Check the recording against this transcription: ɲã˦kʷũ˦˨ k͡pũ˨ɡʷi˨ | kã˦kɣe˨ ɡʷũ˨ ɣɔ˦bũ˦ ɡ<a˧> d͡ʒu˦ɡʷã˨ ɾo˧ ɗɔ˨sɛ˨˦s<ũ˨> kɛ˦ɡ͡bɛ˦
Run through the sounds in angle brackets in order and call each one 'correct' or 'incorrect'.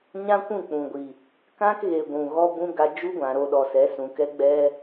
correct, correct

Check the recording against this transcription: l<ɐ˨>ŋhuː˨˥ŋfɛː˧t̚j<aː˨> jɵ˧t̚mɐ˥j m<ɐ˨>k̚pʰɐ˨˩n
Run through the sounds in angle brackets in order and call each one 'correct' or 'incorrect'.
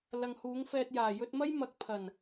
correct, incorrect, correct

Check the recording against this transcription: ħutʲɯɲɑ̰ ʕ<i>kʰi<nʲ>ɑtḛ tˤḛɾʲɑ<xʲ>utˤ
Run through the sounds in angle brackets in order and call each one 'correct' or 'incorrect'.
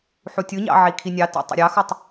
correct, correct, incorrect

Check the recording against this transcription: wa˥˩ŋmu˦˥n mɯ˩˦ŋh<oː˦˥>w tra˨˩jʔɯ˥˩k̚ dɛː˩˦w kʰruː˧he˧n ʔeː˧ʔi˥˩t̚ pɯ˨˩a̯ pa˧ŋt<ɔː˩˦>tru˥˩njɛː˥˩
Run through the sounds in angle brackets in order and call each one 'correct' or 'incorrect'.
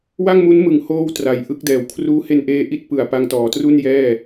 correct, correct

